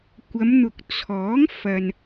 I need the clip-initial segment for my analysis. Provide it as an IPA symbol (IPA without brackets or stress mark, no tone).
kʷ